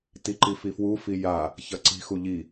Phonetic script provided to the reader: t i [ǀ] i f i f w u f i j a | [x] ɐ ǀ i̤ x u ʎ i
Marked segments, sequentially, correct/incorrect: incorrect: ǃ, incorrect: ç

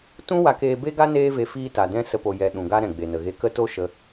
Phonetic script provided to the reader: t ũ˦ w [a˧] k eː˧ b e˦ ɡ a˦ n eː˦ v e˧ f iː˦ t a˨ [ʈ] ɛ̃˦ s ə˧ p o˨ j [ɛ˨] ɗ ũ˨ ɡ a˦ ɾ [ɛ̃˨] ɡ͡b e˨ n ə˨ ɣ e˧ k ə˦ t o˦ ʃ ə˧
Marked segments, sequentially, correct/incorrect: correct, incorrect: d, correct, correct

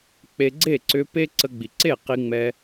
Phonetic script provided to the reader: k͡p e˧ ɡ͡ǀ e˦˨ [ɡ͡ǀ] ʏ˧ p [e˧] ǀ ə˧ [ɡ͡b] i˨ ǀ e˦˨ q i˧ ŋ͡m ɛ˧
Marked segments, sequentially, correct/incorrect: incorrect: ǀ, incorrect: e˦, correct

